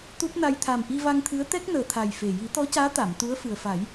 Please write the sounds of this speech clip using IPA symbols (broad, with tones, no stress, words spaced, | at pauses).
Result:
t̪u˦˥p̚na˧j t̪ʰa˨˩mʔi˧va˧ŋt̪ʰɨ˧˥ə̯ t̪ɛ˦˥k̚nəː˨˩t̪ʰa˨˩j fe˨˩ ji˨˩˦t̪ɔ˧˥caː˧˥ t̪a˨˩˨mt̪u˧˥ə̯fɨ˨˩ə̯ fa˨˩˦j